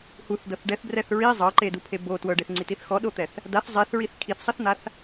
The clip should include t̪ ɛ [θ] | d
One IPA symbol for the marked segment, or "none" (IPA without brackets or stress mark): θ